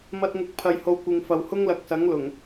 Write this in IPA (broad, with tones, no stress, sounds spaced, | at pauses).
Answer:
m ɐ˧ t̚ ŋ ʊ˨ k̚ pʰ ɐ˨ j h o˨˧ w kʷ ɪ˨ ŋ f ɐ˨ w h ʊ˥ ŋ l ɐ˨ k̚ s ɐ˨˥ ŋ l ʊ˨˩ ŋ